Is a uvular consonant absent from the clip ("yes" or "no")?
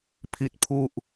yes